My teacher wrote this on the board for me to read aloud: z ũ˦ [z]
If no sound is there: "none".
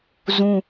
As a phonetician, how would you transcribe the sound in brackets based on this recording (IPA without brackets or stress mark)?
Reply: none